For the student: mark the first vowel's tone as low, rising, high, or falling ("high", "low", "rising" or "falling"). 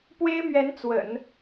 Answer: high